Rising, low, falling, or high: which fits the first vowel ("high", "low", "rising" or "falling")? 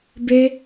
high